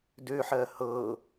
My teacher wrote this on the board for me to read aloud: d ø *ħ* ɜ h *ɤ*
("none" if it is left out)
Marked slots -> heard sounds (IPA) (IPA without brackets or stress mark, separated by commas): ħ, ɤ